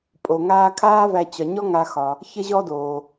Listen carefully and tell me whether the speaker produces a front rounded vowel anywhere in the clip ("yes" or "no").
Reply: no